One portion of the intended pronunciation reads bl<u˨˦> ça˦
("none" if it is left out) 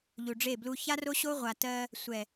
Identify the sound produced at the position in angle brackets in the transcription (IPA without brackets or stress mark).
u˦